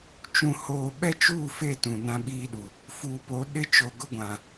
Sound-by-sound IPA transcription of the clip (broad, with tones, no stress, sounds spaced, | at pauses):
t͡ʃ ũ˨ h oː˨ ɓ ɛ˦ t͡ʃ uː˦˨ f e˦˨ t ũ˨ n ã˦ ɓ iː˦ ɗ u˨ | f uː˨ p o˨˦ ɗ ɪ˦ t͡ʃ o˨ ɡ ʊ˦ ɡʷ ã˨